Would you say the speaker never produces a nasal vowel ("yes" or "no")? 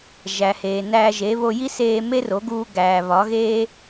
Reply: yes